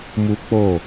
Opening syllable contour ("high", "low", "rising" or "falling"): high